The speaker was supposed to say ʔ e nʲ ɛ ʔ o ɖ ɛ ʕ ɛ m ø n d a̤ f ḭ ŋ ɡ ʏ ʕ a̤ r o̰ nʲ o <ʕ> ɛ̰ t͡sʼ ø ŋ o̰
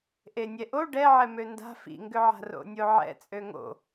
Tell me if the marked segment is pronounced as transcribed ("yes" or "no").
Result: yes